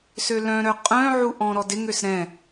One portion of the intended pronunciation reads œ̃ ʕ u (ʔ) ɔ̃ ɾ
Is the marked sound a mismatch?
no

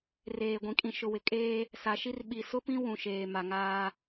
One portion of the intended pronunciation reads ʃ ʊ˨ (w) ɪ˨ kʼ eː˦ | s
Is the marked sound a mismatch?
no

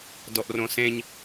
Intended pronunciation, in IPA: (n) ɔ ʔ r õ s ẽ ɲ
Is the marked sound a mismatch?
yes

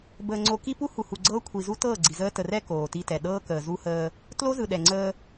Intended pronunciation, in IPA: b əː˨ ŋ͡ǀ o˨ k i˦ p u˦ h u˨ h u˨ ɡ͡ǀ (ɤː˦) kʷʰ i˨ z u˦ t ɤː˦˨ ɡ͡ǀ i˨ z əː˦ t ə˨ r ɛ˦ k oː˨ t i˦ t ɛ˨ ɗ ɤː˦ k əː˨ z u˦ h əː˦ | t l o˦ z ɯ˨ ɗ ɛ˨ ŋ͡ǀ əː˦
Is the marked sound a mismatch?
no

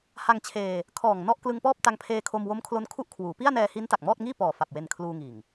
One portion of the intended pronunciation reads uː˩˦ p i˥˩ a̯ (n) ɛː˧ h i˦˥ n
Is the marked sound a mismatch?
no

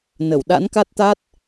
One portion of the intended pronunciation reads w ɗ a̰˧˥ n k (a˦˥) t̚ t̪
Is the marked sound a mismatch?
no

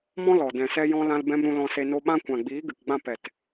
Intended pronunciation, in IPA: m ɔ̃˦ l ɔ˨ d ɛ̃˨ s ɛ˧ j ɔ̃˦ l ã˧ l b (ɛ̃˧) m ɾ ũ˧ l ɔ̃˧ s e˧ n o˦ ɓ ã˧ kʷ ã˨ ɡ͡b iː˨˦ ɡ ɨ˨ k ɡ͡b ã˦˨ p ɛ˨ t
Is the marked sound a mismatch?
no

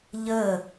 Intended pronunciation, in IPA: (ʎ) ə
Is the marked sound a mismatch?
no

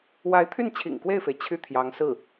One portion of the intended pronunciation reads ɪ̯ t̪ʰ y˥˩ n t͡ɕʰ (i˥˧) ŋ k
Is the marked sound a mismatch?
yes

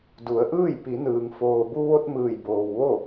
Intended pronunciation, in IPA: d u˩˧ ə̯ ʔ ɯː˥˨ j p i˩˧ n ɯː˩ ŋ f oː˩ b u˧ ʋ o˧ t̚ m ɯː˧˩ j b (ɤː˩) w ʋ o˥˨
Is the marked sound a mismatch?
yes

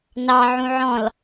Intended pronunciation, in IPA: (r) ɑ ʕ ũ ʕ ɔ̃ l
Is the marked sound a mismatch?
yes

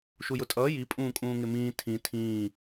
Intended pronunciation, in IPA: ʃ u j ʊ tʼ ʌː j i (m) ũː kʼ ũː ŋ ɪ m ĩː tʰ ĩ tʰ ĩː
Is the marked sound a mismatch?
yes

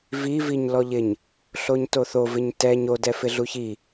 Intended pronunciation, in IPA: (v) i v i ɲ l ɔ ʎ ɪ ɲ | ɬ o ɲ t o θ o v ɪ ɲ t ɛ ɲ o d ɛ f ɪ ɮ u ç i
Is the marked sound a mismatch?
no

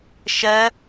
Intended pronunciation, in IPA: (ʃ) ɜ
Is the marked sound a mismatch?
no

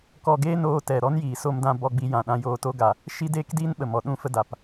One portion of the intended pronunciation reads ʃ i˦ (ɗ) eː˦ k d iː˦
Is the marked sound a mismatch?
yes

